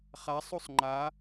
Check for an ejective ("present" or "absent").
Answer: absent